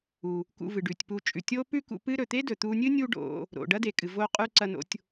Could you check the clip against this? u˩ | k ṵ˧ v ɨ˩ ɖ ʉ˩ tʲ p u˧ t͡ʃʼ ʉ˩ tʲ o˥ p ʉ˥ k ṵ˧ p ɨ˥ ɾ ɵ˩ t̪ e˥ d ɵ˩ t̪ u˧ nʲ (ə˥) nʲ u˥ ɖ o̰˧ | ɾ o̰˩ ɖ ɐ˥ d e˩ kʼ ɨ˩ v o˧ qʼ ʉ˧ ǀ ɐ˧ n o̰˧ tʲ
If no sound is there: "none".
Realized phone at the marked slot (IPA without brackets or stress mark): ɨ˥